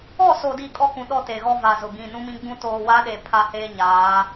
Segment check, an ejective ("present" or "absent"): present